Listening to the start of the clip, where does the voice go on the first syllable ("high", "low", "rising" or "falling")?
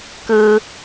high